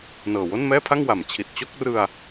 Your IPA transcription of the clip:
nɤː˨˩wo˥˩nmɛː˥˩pʰa˥˩ŋ wa˩˦mt͡ɕʰi˨˩t̚t͡ɕo˥˩k̚ rɯ˧a̯

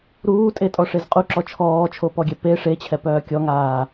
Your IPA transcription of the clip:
ɾuːtʼetʼɔʂez qʼuǁɔ t͡ʃʰɔːt͡ʃʰopɔɡʲɛ pe ʂet͡ɕʰɛpœː kʲɔŋaː

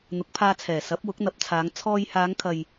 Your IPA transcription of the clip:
n̪ʊ˨˥k̚pʰaː˧t͡sʰɛː˨˩sɐ˨˥p̚ wʊ˨˥k̚n̪ɐ˨˥p̚t͡sʰaː˨˧ŋ t͡sʰɔː˧jhaː˨˧ŋkʰɐ˨j

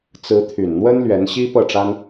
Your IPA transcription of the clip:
t͡sɹ̩˧˥t̪ʰy˨˩nn̪wə˥n lɥɛ˧˥nɕi˥pɤ˥˩ʈ͡ʂa˥n

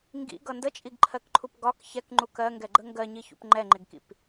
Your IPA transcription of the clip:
ŋɡḭɡʌ ndət͡ʃʼiɡǃʰɜkǃʰup ɡɒk çɛkŋ͡ǃuk ɜŋɡɛɡ͡ǃə ŋɡɜɲiçṵp ŋ͡ǃɛŋ͡ǃɪɡkḭp

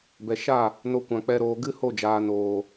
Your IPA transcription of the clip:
bɛ˨ʃa˦˨ | no˧kʷã˨k͡pɛ˧ɾoː˨ ɡɨ˦ho˦˨d͡ʒaː˨noː˨

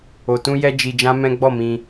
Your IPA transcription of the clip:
o˨tũ˧jɛ˧ d͡ʒi˧d͡ʒã˦mɛ̃˦ ɡ͡bɔ˦˨mĩ˧

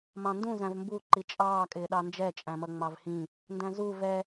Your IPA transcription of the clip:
mɑ̃ndũ zæ̃vmbu ǃit͡ʃʼɑː kʼɪːɗɑnd͡ʒɛ t͡ʃʼæ̃mʌŋ͡mɑvhĩ | ndæ̃zu vɛ

